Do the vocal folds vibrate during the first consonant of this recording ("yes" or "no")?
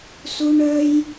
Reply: no